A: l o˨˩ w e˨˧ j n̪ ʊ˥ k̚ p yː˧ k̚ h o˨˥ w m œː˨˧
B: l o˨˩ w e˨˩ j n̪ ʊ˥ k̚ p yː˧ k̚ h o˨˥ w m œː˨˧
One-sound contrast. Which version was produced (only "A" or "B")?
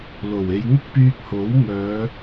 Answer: A